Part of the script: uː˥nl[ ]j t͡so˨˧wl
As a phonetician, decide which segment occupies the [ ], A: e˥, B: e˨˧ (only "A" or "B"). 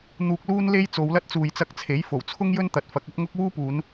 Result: A